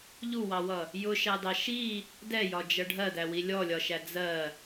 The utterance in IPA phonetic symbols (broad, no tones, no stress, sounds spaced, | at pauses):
ʎ u w ɑ w ʌ | j ʊ ʃ ɑ d ɑ ʃ i | d ɛ j ɒ d͡ʒ ʌ ɖʱ ɜ d æ w i lʲ ɔ lʲ ɒ ʃ æ d͡z ɜ